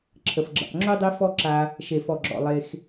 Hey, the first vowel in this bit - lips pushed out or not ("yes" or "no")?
no